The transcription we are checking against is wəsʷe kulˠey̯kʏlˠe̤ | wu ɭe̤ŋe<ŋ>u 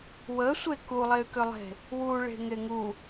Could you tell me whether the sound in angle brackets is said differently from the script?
no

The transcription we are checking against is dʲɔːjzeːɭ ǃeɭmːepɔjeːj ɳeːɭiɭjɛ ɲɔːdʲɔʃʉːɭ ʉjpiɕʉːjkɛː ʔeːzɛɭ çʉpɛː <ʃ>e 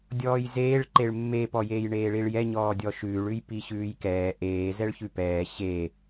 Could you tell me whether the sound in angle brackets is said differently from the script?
yes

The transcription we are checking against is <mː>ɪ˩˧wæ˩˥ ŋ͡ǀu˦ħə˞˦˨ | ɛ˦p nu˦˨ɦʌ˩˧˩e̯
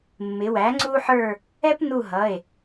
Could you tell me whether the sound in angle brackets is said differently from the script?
no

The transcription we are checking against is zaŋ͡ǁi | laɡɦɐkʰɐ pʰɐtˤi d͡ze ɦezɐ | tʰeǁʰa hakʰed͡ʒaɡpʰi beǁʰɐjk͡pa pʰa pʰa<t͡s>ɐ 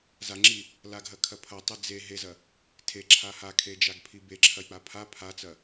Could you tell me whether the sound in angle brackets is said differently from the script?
no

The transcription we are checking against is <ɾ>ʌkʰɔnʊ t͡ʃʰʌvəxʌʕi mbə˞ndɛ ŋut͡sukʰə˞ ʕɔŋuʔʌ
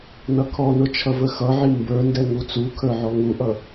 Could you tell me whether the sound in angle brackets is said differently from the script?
yes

